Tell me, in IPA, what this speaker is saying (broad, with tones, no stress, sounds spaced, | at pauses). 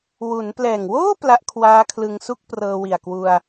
w u˩˦ n p l ɛː˨˩ ŋ w oː˥˩ p l a˦˥ ʔ kʰ w aː˦˥ kʰ l ɯ˧ ŋ s u˥˩ k̚ p r ɤː˧ w i˨˩ a̯ k w u˧ a̯